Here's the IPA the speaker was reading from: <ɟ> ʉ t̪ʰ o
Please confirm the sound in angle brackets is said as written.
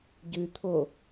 yes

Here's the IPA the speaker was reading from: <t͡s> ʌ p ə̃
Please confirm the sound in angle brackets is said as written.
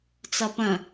yes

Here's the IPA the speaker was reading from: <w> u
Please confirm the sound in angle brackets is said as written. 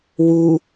yes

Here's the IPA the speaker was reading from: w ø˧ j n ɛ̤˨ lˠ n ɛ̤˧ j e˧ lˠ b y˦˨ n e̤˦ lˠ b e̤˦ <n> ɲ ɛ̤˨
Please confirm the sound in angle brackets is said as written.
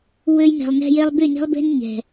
yes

